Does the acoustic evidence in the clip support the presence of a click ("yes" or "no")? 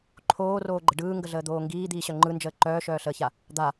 yes